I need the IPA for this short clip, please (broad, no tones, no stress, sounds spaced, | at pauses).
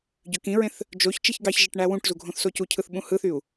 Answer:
ɟ ø k ĩ ɹ ẽ θ | d͡ʒ o ç t͡ʃ i ç ɡ ɑ ç ʒ e ʈ ɳ æ w ũ ʈ z u ɡʱ õ θ s o c u cʰ ɯ θ ɓ ũ h ɯ θ y u̯